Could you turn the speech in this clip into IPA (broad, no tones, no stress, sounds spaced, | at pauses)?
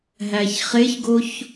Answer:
ɦ æ ç χ e ç ɡ o ç